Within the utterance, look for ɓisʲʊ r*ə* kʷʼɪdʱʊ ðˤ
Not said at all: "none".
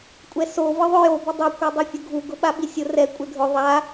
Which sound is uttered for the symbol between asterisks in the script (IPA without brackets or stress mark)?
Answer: ɛ